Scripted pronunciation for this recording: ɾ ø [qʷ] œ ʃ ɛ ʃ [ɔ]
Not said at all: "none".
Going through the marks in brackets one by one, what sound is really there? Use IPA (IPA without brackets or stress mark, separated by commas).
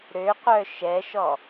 qʷ, ɔ